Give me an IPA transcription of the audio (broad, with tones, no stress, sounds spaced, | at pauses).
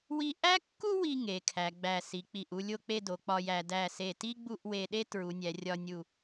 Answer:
w i˥ ʔ æ˥ kː u˥ w i˧ ŋ e˩˧ kʰ æ˩˧ ɡ͡b æ˧˩ s i˩˧ k͡p i˧˩ ʔ u˥˧ lʲ o˥˧ k͡p e˥˧ d o˩˧ k͡p ɒ˧ j æ˩˧ d æ˧˩ s e˧˩ t i˥ ɡ͡b u˥˧ ʔ w e˧ ɗ e˥ t ɹ u˩˧ nʲ æ˩˧ rʲ ɒ˧ nʲ u˧˩